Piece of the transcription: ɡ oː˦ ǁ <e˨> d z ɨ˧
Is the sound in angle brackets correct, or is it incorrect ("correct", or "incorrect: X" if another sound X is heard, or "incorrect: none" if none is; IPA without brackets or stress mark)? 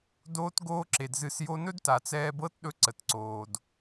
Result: correct